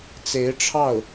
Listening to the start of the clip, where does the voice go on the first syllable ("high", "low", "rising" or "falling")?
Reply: rising